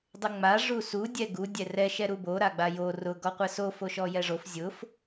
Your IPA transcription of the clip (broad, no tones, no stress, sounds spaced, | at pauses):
dˤ ɪ ŋ͡m a ʐ u s u dʲ ɛ ɡ u dʲ ɛ r ɛ ʃ ɛ ɾ u b o ɾ a ɡ͡b a j o r ʊ ɡ ɔ qʷ ɛ s o f o ʃ ɔ j ɛ ʐ o f zʲ ʊ f